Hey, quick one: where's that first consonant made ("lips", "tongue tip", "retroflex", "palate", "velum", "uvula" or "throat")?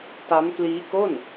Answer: tongue tip